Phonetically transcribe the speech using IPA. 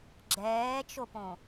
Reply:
ɡ͡ǁɛːt͡ʃopõ

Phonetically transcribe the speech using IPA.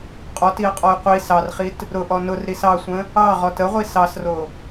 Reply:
qʼɔtiə̯qʼɔj qʷi sɑrχit | ɾʊʔɔ nʊrɾis ɑsʷə̃ | ɑʁɔt əʁʷi sɑsro

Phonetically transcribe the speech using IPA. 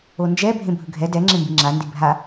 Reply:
ond͡ʒɛ bʱẽbʱɯɡʱɛ dɛ ŋ͡ǁẽmbiŋ͡ǁandi bʱa

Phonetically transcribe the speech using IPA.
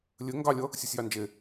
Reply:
lʲɘ ŋɡɑlʲʌ | sʲusʲjɑnd͡ʒe

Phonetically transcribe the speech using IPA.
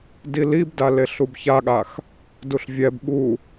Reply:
dilibda leɬubçaɠax | duɬvʲɛb ɓu

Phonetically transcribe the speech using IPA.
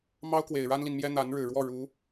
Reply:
mɑ˥ʊ̯kwe˨˩ɪ̯ ɻa˥nli˨nmjɛ˥ n̪a˧˥nɻɻ̩˨˩ ɻwɔ˥˩ɻu˧˥

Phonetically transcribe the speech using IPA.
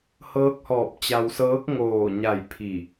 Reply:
hɤː˧˥k̚hɔː˧˩p̚ t͡ɕa˧wsɤː˧˥k̚ ŋoː˧˩ɲa˧˩j pʰi˧˩

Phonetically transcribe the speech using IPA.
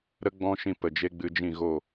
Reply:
ɾə˦ɡ͡bɔ̃˦ʃĩ˧ pə˨d͡ʒe˦ɡ͡bɨ˧d͡ʒĩ˦˨ ɣo˦˨

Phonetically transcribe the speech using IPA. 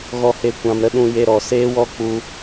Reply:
ɣɔ˦he˦ kʷã˧mɾə˦ɗũ˧ je˦ɾɔ˧ seː˦wɔ˦ k͡pu˦

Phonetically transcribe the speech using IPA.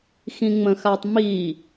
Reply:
xĩŋ͡mə̃xatˤmi

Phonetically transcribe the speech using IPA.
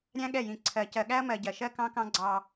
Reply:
ɾʲæ̃˦ɠɛ˦˨jĩ˨ ǀʰɜ˨ cɜ˨ɠæ˦ɐ̯mɜ˨ ɟɜ˨ʃɜ˦ kɑ̃˦kɑ̃˦ ɡ͡ǀɑ˦

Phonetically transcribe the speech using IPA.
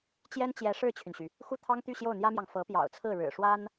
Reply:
t͡ɕjɛ˥nt͡ɕjɛ˧˥ ʂɻ̩˥˩t͡ɕʰy˩nɕy˩ | xu˥˩t̪ʰɑ˥ŋt̪y˥˧ ɕjo˥˩ʊ̯n̪jä˥mjɑ˨ŋ fɤ˧˥pjɑ̰˨˩ʊ̯t͡sʰɹ̩˥˩ ɻɻ̩˨˩ʂwa˥n

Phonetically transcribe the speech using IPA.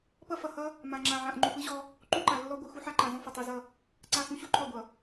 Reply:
pʌ˦fʌ˨ hʌ˦ | mã˨ŋ͡ǁã˨ʕã˨ʔ ŋ͡ǃu˨pɯ˦ʑɔ˦ | ǃu˦ǃa˨lːɔ˦ ɡʷɯ˨xu˦ħa˦ǃã˨ zɔ̃˦fʌ˨ tˤu˨zʌ˦˨ | ǀa˦˨xũ˦ɕu˦ǃʰɔ˦˨ ɡʷʌ˨

